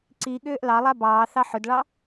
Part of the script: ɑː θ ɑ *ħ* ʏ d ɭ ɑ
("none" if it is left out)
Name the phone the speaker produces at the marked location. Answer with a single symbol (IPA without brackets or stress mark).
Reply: ħ